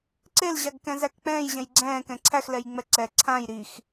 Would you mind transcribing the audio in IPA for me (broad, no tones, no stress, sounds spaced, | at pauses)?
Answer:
ǀ e l ʑ a ɡ k ɛ̃ z æ k k͡p ɛ̃ː j ʑ ɛ̃ j ɡ͡ǀ ɛ̃ː k ɛ̃ ǀʰ æ x l ɛ j ŋ͡m ɛ ǀ ɛ ǀʰ ã j ɾ i x